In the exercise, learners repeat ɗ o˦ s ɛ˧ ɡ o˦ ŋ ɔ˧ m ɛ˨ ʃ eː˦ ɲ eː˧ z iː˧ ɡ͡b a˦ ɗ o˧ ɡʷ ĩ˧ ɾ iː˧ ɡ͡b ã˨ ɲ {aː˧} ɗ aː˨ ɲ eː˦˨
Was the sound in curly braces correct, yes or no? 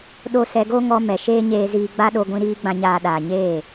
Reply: no